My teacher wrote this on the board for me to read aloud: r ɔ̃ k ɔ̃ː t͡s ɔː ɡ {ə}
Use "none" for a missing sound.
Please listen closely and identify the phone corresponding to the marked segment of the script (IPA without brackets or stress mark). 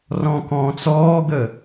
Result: ə